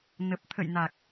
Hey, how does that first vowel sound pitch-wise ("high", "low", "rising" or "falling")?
low